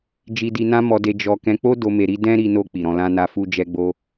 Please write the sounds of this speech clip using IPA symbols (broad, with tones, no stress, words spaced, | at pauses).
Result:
d͡ʒi˧di˧nã˦ mɔ˧de˧ d͡ʒɔ˧ kɛ̃˧k͡po˦ do˧ me˧ɾi˦ dɛ̃˦ ɾi˧no˧ k͡pi˨ɾɔ̃˧lã˦na˦ fu˧d͡ʒɛ˧ɡ͡bo˧